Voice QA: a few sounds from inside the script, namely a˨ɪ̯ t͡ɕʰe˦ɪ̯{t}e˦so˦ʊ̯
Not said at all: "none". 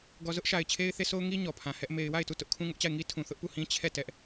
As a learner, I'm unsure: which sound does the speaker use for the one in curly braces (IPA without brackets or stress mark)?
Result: θ